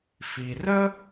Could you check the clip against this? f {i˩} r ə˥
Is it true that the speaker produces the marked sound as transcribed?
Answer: yes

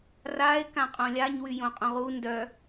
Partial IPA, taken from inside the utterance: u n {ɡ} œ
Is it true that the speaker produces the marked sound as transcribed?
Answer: no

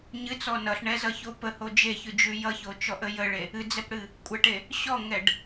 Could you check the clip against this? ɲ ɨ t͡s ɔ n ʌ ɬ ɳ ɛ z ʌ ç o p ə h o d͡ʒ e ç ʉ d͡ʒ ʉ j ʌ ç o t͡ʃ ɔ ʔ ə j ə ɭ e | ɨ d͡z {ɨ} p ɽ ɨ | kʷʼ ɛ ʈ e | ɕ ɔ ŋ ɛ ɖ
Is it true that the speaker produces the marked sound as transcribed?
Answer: no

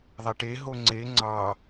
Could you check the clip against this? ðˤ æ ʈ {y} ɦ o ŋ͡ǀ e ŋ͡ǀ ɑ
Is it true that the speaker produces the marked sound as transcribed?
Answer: no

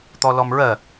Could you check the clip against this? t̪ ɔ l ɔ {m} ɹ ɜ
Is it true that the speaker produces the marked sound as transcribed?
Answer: yes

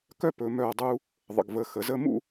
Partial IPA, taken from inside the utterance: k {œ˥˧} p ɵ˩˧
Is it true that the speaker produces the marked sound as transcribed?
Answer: yes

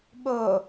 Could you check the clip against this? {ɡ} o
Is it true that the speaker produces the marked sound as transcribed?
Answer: no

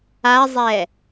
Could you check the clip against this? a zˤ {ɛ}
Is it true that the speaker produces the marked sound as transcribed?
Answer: yes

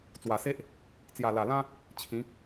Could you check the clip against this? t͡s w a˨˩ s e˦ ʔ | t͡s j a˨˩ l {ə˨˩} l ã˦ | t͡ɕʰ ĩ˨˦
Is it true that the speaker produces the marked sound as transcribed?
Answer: no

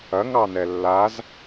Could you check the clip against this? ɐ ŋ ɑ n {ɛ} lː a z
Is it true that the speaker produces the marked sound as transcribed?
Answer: yes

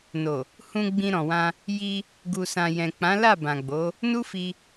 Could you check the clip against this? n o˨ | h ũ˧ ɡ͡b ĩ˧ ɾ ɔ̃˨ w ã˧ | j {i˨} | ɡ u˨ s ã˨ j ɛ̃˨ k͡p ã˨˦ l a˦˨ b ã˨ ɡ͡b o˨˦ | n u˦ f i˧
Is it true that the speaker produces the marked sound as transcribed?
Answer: no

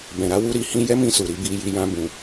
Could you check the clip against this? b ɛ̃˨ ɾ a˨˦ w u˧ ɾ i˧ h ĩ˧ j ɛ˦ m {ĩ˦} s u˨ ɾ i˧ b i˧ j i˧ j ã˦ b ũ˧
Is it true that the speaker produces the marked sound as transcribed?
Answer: no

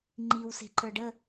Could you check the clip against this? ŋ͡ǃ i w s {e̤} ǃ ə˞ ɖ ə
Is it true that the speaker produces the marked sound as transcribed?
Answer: yes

